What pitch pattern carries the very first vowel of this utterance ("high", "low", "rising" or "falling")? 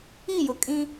falling